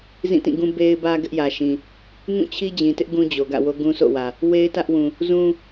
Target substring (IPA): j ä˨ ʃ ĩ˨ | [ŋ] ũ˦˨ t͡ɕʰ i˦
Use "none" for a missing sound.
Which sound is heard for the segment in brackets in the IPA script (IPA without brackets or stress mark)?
ŋ